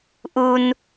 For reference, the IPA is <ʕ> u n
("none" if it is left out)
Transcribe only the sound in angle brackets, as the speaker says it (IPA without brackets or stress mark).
ʔ